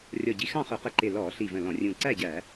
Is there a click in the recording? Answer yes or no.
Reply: yes